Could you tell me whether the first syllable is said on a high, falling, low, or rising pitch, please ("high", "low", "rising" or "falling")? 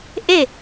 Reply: falling